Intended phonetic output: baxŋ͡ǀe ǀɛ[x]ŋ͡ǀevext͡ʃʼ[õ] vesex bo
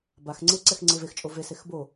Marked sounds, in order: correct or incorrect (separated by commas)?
correct, incorrect